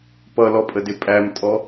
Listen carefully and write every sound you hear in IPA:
pʌlɔpʼədɪ pʼæmtʼɔ

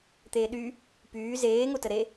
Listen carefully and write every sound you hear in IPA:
t̪eːɗy | pyː zeː ŋotəɾe

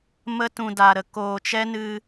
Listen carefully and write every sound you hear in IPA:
mə˧tũ˨ da˨ɾə˨ koː˨t͡ʃɛ˦nɨ˧

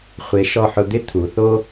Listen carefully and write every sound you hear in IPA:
χʷe˩˧ʃɔ˧˩ħʊ˧ d̪ɪ˥ t̪ʰu˩˧θo˥

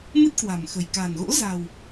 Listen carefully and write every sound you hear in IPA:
mɨ˦˥t̚kwa̤˨˩mxə̤˨˩j ka̤˨˩nɣo̰˧˥za̤˨˩w

